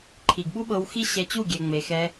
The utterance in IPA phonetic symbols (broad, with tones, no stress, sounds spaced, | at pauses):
ǃʰ i˨ ɡ ɓ u˦ ɓ ɤ˧ w x i˦ ɕ ɛ˧ t͡ɕ u˦˨ ɡʲ ɛ˧ ŋ͡m e˧ x ɛ˧